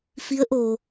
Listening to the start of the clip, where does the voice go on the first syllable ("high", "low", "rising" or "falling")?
rising